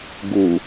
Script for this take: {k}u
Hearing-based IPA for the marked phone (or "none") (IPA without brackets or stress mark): ɡ